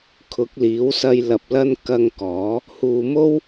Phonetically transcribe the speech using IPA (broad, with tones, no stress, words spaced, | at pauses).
kʰʊ˨˥k̚liː˨˥wsɐ˧j lɐ˨p̚ lɐ˧n kɐ˧ŋ kɔː˨˥ | huː˨mo˥w